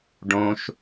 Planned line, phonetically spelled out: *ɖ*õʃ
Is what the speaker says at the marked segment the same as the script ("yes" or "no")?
yes